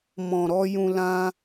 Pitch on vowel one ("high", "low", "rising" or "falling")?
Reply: low